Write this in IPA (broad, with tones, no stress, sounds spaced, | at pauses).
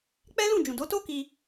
k͡p ɛ˦ l ũ˦˨ d͡ʒ ũ˨ d o˨˦ t o˦ k i˧